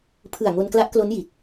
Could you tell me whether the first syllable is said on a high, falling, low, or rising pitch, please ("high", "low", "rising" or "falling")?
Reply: low